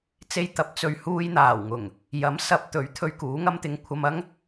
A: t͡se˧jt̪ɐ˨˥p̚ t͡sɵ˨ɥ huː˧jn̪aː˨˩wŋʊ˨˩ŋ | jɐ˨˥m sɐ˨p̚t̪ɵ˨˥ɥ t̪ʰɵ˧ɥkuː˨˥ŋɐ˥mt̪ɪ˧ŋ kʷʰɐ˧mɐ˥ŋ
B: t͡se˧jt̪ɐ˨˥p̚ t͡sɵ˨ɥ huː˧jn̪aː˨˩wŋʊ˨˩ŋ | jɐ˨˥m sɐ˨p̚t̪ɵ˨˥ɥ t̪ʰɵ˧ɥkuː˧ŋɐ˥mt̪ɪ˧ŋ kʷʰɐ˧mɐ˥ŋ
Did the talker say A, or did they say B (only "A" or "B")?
A